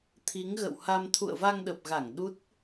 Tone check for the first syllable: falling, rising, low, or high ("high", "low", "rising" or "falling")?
rising